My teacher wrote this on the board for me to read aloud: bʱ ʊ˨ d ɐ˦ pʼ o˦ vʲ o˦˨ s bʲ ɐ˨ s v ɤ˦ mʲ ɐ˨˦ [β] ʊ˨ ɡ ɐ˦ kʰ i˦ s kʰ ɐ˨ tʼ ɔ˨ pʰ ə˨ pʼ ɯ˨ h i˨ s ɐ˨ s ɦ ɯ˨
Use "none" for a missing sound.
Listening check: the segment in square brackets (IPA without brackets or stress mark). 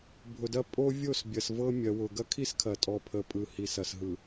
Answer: w